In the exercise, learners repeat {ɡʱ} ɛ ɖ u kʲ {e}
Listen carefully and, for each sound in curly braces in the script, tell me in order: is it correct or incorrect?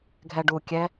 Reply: correct, incorrect

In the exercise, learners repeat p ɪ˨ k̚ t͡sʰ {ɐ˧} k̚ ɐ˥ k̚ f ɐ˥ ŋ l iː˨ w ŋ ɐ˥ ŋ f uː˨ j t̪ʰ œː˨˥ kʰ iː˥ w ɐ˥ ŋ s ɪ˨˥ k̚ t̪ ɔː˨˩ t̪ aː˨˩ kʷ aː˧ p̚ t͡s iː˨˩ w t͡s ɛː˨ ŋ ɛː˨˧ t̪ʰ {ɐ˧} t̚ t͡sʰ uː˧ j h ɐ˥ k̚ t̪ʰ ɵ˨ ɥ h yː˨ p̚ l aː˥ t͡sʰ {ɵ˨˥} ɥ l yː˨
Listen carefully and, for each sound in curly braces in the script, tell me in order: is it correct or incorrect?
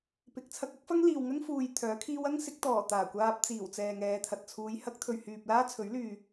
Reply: correct, incorrect, correct

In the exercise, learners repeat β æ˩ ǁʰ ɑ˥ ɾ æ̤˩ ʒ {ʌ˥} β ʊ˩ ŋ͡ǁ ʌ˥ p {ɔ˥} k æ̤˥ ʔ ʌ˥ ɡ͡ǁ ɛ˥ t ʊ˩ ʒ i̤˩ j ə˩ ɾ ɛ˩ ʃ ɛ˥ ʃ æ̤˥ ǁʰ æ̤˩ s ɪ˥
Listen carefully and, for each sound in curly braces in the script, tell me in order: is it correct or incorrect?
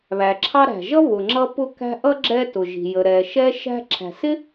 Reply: correct, incorrect

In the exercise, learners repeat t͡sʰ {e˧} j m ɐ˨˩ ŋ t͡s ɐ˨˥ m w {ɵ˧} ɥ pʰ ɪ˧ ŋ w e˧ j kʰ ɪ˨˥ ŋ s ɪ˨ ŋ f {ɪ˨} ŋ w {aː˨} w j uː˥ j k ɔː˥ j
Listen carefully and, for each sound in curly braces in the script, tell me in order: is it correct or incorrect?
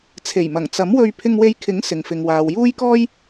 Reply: incorrect, correct, correct, correct

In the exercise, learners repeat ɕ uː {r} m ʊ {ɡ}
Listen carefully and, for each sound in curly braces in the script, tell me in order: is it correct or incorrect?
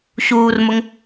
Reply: correct, incorrect

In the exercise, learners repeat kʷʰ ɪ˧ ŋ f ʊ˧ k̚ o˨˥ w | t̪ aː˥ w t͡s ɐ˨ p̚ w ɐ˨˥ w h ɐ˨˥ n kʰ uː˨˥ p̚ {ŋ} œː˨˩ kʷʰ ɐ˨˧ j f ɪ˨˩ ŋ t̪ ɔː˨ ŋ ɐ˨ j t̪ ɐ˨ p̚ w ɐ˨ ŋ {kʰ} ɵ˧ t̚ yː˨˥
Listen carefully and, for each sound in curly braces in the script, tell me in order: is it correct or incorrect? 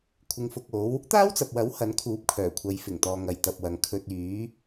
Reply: incorrect, correct

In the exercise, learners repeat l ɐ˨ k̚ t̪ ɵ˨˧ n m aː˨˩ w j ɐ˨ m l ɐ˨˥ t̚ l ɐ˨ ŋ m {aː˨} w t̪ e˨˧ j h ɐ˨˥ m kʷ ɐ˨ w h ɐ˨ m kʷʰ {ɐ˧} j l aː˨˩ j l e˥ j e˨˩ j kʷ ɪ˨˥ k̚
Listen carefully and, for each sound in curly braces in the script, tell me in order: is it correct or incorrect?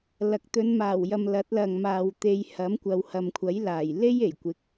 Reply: correct, incorrect

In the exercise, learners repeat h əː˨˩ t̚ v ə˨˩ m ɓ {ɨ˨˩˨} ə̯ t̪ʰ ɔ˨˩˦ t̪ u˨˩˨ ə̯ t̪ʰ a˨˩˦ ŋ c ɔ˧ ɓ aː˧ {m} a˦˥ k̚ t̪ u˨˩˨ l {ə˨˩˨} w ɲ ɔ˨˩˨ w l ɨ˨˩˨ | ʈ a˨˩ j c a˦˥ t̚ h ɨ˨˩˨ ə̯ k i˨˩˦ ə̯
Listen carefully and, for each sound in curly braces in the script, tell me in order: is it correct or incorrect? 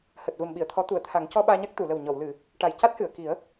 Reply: incorrect, incorrect, incorrect

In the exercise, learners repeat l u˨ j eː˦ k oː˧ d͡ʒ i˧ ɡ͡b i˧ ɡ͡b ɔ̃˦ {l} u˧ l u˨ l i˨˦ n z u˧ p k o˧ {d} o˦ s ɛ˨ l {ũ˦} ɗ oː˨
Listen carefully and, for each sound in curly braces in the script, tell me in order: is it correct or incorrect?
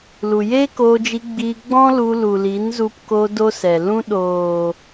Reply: correct, correct, correct

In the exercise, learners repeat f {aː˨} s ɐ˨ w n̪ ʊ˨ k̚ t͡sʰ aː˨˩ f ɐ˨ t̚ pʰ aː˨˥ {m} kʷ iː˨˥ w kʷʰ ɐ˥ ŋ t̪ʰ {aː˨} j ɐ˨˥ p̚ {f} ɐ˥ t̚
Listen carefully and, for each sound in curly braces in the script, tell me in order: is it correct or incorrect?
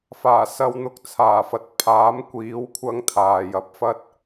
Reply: incorrect, correct, correct, correct

